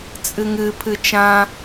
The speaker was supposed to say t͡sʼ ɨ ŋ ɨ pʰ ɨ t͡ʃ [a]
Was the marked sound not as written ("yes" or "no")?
yes